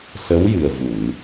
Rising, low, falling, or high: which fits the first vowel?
rising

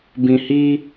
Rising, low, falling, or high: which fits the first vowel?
low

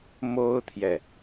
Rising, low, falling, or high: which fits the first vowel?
high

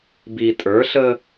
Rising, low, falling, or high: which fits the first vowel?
low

